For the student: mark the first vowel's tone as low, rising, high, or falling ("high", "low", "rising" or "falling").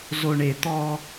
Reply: low